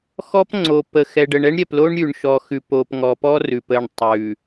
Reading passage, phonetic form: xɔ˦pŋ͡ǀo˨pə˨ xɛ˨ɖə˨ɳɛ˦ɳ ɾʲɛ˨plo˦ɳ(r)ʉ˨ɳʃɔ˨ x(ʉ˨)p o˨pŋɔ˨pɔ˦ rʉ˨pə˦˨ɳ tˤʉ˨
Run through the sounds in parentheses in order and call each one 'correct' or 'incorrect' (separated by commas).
incorrect, correct